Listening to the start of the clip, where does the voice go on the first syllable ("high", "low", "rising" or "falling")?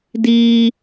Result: high